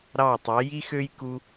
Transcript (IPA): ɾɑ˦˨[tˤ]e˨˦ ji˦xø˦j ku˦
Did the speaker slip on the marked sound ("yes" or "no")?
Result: no